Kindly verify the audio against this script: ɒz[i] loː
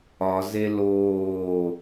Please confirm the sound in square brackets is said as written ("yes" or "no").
no